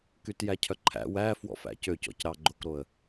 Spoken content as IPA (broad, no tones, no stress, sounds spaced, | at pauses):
k y t j æ cʰ œ ǃʰ æ̰ w æ f w ɔ̰ f æ̰ c ø c ɔ̰ c ɾ ɑ ɡ͡ǃ o k ɾ o ə̯